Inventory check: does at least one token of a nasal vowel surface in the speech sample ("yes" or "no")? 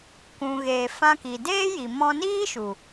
yes